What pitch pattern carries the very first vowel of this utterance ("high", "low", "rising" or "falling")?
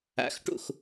rising